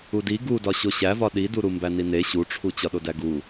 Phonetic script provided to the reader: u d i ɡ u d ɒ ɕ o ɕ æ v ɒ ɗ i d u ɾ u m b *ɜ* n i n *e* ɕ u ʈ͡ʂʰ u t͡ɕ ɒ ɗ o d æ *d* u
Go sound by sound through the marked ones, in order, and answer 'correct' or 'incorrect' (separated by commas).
incorrect, correct, incorrect